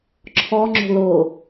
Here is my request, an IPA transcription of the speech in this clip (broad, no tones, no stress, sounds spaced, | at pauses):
ǁʰ ɔ ŋ͡ǁ o̤ l o